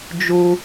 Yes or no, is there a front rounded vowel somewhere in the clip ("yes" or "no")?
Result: no